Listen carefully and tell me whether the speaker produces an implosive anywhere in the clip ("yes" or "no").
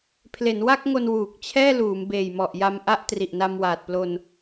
no